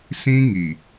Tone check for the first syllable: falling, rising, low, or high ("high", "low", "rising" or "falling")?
high